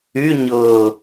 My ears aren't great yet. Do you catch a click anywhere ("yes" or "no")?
no